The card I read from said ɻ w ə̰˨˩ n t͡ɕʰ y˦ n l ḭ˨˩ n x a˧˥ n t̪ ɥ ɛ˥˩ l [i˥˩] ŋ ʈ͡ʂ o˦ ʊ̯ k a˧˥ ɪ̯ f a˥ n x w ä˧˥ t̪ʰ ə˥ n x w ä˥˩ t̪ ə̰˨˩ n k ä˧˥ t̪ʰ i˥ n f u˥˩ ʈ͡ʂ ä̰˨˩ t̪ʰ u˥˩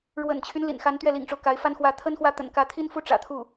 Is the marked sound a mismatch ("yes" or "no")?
yes